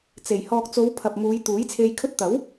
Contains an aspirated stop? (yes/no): yes